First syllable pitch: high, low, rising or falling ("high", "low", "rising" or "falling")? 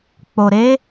low